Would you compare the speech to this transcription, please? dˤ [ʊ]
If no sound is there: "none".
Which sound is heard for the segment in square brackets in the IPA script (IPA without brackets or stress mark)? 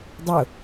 ʊ